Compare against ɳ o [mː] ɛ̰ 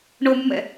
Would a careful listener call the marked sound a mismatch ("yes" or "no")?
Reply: no